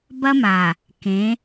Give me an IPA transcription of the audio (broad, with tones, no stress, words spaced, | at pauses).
bɐ˦maː˨ | kẽ˨˦